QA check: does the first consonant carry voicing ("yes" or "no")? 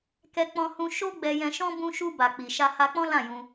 no